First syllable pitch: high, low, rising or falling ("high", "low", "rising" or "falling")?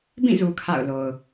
falling